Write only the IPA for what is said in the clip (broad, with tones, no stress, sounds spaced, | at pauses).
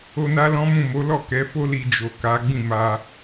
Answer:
o˧ n a˦ l ɔ̃˦ m ũ˦˨ m o˨˦ l ɔ˦˨ k ɛ˨˦ f o˦ l i˧ d͡ʒ o˨ k a˨˦ ɡ͡b ĩ˦˨ m a˧